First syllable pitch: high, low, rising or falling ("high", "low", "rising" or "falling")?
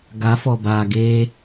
rising